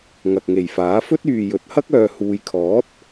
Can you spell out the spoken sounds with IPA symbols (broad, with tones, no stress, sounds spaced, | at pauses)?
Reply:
ŋ ɐ˨ k̚ ŋ e˨˩ j f aː˨˥ f ɵ˥ t̚ yː˨ j ɵ˨˥ t̚ h ɐ˥ k̚ œː˨ h uː˨ j kʰ ɔː˨˥ t̚